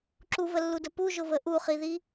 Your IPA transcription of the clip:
ǁuvəlːudə puʒʊvə ʔuχiði

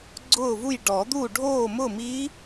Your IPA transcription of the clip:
ɡ͡ǀʊː˥˨vu˥˨j ɖɔ˨˩˦d̪u˥˨ ɖʱoː˥˨mʊ˥˨mi˧˥

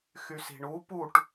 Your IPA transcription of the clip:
xysi̤ɳu puʈ

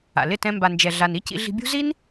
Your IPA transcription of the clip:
a̰˨lɪ˦˨tɛ̃˧ mba˨nd͡ʒɛ˨ɮa˨n i˦cḭ˧ɮi̤˧bʲṳ˦ zi˦n

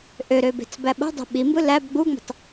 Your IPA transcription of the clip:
ʔøɾøbe̤t͡s bæɓo̤ dˤe̤ɓimbɯ læb ɡ͡buŋ͡me̤tˤ

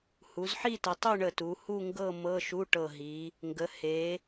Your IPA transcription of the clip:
hu˩˧zħi˥˧tə˩˧ tˤu˥˧ ɳə˧˩tu˩˧hu˥˧ŋɡɤ˥˧ mɤ˧˥˧ʃu˧˥˧ʈɤ˧˩ɦi˩˧ | ŋɡə˩˧he˩˧

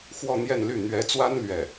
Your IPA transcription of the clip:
xwɔ˥˧n̪jɛ˥˧nly˥˩ n̪ɥɛ˧˥t͡swa˥n lɥɛ˥˩

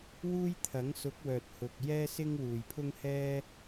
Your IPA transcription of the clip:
wuː˥jt̪ʰɐ˨˥ŋsʊ˨˥k̚ wœː˨t̚hʊ˨k̚ jɛː˥sɪ˥ŋ wuː˨˩jpʰʊ˥ŋhɛː˥

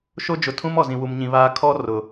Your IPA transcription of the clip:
ʃo˦d͡ʒʊ˨ tʰũ˦m ɔ˨zĩ˨wu˨mɲĩ˨ βaː˦ kʰɔ˦ rʊ˨

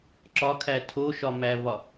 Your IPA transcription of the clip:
ǁɒkʰæ tʰoʃɒmævɒ

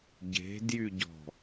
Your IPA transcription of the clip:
ɟe̤ djyɟɔ̤

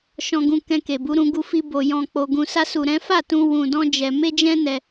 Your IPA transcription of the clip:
ʃɔ̃˧ ɡũ˧kɛ̃˧ke˨bu˨˦ ɾũ˧ ɡu˧fi˧ bo˨ jɔ̃˧k͡po˧ɡũ˧sa˦ su˧ɾɛ̃˦ fa˦˨tũ˧ wũ˧dɔ̃˦d͡ʒɛ˧ me˦d͡ʒɛ̃˦nɛ˧

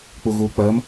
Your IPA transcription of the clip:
k͡puɣuːk͡pɜm

